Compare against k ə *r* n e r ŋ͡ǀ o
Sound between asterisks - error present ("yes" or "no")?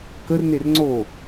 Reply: no